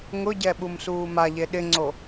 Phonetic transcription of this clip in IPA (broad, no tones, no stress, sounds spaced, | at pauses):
ŋ ʊ ɟ ɛ ɓ u m s uː m a ʎ e ɗ ɪ ŋ͡ǀ o